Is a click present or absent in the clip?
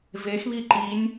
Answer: present